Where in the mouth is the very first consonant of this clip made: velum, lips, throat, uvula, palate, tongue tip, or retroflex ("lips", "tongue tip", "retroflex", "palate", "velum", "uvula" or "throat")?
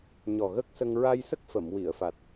palate